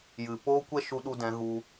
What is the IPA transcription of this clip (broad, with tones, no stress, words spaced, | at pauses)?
jɨ˨ poː˦kʷɛ˦ ʃu˦ɗu˦dɛ̃˨˦ ɣu˧